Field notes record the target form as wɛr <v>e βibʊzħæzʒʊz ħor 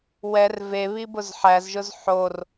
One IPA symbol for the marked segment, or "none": v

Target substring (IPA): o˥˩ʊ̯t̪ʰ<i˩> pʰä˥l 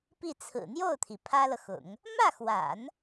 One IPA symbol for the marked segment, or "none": i˩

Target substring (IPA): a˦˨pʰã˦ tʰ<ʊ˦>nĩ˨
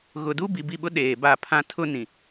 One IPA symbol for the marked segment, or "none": ʊ˦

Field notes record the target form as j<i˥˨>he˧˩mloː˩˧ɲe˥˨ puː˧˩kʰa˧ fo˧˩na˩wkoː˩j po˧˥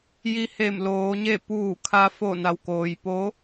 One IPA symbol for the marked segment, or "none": i˧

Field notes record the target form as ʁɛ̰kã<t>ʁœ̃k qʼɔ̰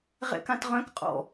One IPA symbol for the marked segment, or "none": t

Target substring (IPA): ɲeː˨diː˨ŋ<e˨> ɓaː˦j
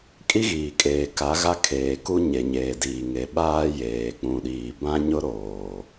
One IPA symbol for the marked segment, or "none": e˨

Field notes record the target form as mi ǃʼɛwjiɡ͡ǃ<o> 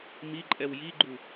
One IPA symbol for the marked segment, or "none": u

